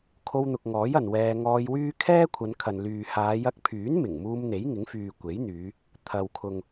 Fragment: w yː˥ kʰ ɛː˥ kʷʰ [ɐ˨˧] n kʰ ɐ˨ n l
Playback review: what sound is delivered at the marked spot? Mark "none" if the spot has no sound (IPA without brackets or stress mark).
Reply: ɐ˨˧